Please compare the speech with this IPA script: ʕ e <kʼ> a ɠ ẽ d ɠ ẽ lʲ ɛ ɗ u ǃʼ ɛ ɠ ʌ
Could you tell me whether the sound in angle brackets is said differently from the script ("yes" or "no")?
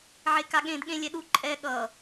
yes